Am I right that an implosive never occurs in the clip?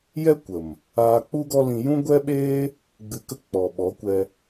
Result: no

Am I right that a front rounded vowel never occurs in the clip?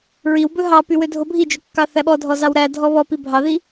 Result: no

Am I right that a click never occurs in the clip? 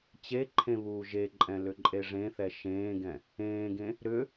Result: no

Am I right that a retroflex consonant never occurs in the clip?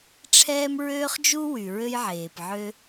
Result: no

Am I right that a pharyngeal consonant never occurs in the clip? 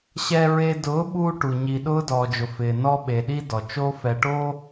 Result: yes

